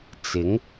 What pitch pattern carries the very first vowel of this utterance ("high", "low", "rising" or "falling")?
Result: rising